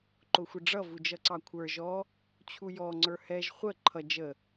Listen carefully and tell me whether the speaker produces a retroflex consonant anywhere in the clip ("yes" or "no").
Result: yes